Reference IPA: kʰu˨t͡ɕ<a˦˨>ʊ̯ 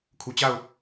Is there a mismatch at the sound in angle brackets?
no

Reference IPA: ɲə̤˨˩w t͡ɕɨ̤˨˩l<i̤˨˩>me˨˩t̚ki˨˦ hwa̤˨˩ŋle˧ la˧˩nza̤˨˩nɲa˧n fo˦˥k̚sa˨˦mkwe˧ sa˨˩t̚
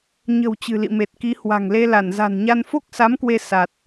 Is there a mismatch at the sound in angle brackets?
yes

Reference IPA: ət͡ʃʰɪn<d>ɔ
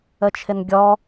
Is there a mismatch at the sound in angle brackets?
yes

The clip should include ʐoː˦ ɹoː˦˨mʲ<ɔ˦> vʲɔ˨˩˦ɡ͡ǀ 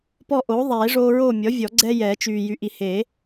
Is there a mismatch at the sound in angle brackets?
yes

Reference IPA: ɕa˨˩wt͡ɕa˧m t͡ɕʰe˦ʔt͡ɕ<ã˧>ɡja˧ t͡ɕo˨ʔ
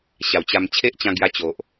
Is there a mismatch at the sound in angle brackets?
no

